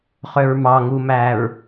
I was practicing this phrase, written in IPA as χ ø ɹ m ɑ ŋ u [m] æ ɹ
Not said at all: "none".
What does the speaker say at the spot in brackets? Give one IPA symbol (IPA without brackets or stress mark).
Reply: m